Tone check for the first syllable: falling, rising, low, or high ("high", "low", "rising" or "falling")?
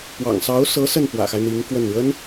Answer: low